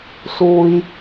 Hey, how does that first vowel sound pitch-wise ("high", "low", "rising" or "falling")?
low